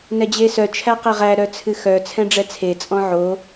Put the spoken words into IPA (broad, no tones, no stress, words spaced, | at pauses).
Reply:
nɛd͡ʑesœ t͡ʃʰæqɛʁæ ɾœt͡sʰɨxœ t͡sʰɛ̃ɖ͡ʐɛt͡sʰe t͡sʼɔ̃ʕo